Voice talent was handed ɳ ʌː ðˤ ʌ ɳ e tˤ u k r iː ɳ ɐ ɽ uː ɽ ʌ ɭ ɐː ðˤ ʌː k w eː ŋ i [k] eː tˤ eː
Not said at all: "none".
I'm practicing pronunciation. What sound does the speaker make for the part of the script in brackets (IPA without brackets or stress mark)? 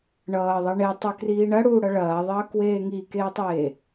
k